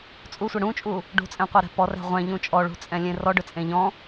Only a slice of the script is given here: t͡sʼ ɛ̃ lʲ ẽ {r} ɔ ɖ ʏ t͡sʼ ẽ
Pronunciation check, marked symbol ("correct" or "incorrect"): correct